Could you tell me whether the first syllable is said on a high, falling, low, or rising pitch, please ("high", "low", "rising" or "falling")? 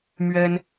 high